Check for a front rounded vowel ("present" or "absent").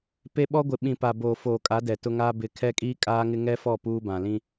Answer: absent